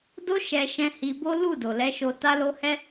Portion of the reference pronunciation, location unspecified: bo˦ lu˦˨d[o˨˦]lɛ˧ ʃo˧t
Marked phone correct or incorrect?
incorrect: o˨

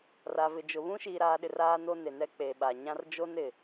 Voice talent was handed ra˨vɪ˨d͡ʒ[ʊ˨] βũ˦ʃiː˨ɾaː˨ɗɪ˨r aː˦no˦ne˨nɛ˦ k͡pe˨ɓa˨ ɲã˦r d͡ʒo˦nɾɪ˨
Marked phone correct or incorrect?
correct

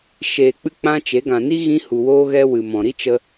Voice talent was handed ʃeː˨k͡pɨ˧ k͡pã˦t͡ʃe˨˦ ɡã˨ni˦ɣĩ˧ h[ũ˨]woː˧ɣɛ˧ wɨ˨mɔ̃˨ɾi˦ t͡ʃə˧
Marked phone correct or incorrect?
incorrect: u˨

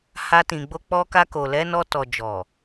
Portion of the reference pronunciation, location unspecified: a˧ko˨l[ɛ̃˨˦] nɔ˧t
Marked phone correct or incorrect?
incorrect: ɛ˨˦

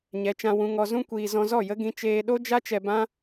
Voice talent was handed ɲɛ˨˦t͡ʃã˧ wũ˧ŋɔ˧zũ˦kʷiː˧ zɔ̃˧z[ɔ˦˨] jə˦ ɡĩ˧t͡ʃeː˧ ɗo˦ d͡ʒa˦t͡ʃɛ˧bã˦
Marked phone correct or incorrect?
correct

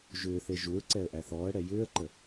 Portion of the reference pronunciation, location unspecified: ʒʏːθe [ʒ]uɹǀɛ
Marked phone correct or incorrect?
correct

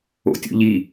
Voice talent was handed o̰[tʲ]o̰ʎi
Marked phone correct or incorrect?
correct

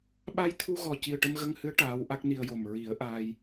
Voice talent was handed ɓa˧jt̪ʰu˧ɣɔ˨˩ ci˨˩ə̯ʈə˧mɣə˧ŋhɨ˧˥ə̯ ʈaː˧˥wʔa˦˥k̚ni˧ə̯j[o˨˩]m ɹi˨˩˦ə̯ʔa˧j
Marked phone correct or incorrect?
correct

